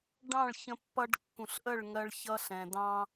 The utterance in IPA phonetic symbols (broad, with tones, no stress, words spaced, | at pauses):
ɖɑ̃˦˨ɭçə̃˧pːʌ˧ɖ kːũ˨ɬʔə˦˨ɭŋɜ˧ɭ çʌ˧ɬɛ̃˨dɑ̃˧